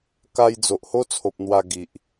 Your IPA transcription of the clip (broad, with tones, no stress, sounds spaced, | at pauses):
k a˧ j d͡z o˨ ʔ h o˦ t͡sʰ o˨ p̚ n̪ w a˧ ɡ i˨ ʔ